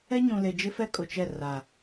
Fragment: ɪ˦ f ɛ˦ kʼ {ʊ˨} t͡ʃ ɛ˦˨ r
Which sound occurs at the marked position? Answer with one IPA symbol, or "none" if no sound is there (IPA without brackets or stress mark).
ʊ˨